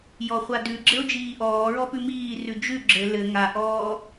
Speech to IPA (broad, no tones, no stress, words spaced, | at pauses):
jɔχʷadʉɡ͡ǁɘo̯ d͡ʒiːʔɔːɹɔpʉ miː rʉd͡ʒʉ ɡ͡ǁɘ lɘ ŋaʔɔː